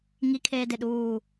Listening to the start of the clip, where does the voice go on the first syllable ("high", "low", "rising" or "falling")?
high